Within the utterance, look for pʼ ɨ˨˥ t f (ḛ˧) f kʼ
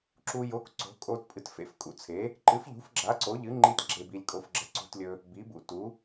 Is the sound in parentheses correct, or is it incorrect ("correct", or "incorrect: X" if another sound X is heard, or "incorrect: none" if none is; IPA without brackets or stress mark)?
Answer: correct